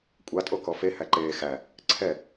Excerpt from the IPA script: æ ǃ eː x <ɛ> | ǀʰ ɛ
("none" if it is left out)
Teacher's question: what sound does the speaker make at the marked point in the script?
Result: æ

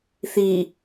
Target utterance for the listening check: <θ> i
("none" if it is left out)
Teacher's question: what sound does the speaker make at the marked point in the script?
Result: θ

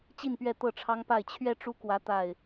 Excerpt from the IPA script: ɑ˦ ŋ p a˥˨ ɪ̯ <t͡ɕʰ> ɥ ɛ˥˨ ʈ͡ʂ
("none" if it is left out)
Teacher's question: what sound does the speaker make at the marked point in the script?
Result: t͡ɕʰ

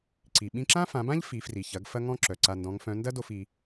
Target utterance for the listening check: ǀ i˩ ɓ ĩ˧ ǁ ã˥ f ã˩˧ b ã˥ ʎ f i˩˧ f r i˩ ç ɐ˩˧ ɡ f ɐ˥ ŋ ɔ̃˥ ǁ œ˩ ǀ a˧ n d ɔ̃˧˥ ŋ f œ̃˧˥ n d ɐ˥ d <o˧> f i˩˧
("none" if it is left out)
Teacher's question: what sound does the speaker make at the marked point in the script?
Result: o˧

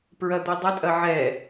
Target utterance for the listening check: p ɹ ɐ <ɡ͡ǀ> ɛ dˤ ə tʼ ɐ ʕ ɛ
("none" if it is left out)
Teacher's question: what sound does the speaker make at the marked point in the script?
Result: d̪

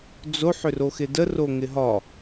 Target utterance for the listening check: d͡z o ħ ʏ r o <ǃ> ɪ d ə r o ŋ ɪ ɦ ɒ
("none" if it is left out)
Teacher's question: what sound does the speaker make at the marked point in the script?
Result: x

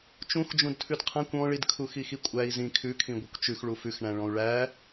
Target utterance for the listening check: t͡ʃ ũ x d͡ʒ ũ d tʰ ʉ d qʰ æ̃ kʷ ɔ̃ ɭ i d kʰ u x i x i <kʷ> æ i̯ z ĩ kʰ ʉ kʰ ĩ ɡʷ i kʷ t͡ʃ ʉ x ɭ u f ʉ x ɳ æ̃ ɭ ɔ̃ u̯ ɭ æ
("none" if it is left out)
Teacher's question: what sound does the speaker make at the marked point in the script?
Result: kʷʼ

